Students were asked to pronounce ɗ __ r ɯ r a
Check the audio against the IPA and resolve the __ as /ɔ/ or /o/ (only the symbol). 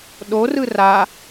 o